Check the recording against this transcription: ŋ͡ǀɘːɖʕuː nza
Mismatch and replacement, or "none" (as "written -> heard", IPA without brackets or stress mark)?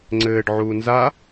none